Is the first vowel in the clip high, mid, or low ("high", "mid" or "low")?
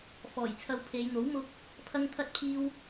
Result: mid